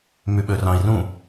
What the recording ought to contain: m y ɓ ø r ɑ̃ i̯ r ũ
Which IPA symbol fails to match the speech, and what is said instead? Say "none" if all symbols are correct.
none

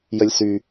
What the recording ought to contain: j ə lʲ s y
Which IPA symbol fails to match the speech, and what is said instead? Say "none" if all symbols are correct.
none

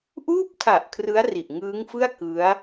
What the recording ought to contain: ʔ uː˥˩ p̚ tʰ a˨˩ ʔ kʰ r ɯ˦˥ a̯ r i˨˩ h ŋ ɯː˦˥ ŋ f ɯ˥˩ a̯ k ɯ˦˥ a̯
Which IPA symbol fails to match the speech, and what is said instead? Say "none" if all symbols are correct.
h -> ʔ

